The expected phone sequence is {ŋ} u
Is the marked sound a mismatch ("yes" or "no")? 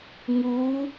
no